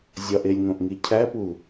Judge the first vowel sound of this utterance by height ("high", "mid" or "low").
low